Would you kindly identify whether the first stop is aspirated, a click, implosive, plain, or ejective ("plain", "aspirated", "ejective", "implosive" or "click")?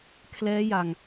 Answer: aspirated